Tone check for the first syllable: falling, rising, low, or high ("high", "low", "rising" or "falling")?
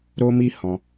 high